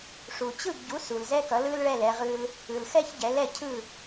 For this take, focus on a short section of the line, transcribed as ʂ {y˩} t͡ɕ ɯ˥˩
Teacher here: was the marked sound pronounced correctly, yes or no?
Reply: no